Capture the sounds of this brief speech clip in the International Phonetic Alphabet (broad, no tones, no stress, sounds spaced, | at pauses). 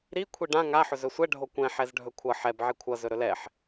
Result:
ɾ i kʷʰ i ɖ ã ŋ a ħ ɵ z ɵ sʷ ɛ ɖʱ o kʷ ɛ̃ ħ ɛ z ɖʱ ɵ kʷʰ ʌ ħ ɛ b ʕ i kʷʰ ʌ z ɵ ɾ ɵ l ɛ ħ